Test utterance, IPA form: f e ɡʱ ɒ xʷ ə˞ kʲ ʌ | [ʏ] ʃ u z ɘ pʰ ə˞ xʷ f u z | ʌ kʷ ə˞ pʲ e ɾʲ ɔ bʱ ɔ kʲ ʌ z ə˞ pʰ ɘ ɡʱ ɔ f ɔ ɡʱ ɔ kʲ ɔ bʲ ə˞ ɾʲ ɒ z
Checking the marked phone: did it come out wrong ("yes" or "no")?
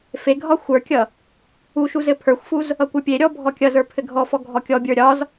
yes